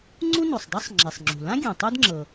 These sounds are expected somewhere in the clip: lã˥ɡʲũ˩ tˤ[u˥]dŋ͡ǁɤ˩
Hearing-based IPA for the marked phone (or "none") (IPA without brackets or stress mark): u˥